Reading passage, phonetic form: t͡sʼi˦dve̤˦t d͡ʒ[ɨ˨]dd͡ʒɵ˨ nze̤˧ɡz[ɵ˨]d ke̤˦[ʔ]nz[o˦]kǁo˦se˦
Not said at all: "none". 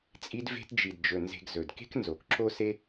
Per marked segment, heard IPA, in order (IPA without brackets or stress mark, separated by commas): i˨, ɵ˨, k, o˨